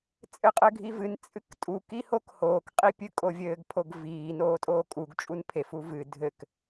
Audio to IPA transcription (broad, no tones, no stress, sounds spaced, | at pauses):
t͡sʼ ɘ qʼ ɘ ɡʱ i v ɨ n t͡sʼ ɨ k tʼ u k i h o k h oː k qʼ i pʲ ɨ kʼ o vʲ ɘː ɡ pʰ o ɡ v iː n oː tʼ oː kʼ u ɡ t͡ʃʼ u n pʰ e f u v ɨ dʱ ɘ k